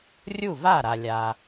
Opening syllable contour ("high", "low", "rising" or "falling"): falling